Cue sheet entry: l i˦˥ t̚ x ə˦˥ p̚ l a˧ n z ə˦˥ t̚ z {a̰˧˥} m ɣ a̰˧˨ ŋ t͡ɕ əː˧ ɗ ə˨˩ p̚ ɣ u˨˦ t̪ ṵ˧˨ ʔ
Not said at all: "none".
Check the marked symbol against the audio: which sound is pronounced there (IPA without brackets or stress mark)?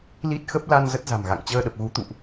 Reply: a̤˨˩